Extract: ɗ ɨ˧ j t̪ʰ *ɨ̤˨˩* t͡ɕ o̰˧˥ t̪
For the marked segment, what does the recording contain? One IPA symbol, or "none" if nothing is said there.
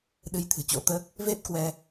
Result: ɨ̤˨˩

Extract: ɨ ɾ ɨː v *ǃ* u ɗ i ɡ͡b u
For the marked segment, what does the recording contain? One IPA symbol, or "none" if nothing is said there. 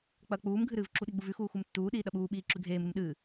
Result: ǁ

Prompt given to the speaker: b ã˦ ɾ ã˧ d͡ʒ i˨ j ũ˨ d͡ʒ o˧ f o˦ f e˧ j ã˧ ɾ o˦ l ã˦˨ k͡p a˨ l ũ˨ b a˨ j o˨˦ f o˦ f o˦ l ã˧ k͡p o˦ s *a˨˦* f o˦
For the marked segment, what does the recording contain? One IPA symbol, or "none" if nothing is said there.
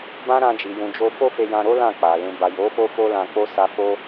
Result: a˦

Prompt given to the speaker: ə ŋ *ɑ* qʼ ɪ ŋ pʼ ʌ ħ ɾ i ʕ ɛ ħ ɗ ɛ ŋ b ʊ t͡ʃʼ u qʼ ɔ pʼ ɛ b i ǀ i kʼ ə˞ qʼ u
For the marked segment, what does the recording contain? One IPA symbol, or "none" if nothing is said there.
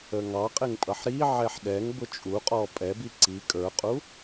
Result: ɑ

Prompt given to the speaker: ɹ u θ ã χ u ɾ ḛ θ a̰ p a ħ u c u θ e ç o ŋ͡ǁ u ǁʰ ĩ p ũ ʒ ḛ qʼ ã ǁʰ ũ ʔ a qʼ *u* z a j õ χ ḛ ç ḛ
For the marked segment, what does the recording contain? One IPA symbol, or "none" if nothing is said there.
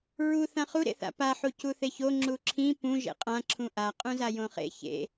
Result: ũ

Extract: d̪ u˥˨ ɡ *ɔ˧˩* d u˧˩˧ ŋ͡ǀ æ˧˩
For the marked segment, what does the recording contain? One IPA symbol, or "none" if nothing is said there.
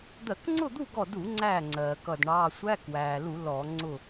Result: ɔ˧˩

